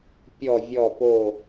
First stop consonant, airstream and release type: plain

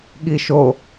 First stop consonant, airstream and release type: implosive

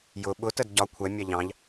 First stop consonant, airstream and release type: implosive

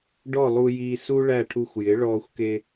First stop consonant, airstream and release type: plain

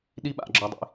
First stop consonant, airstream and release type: implosive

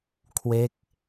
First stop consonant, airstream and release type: aspirated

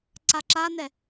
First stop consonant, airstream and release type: click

